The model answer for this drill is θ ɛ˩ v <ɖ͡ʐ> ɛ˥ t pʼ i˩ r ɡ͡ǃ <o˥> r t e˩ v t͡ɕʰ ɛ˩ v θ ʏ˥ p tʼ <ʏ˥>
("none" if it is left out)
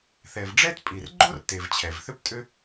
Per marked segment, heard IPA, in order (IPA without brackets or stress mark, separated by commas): ɖ͡ʐ, o˥, ʏ˥